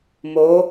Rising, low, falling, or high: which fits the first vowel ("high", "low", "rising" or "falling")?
rising